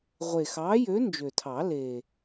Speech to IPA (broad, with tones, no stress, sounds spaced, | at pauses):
ʁʷ e˨˩ x ɑː˨˥ j øː˨˥ n d͡ʒ ø˨˩ tʰ ɑ˨˩˦ l eː˨˩